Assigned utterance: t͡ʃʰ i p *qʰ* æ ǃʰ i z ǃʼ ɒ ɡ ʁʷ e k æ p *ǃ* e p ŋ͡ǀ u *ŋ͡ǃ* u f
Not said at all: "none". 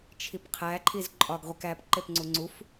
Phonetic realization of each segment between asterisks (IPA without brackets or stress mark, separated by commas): qʰ, ǃ, ŋ͡ǀ